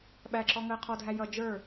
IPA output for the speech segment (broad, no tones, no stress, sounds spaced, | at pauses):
ɓ æ ǁ ɔ ŋ əː qʰ ɔ dʱ æ j ʌ d͡ʒ ə˞